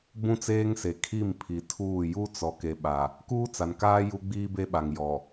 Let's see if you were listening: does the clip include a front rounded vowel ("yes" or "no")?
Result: no